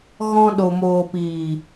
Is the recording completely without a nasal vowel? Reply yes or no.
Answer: no